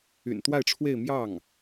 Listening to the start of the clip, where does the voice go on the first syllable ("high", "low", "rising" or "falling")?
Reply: low